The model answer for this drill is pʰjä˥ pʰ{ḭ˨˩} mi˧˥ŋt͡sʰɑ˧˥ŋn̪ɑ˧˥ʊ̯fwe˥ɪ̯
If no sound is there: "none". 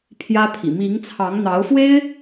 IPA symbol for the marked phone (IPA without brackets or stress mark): ḭ˨˩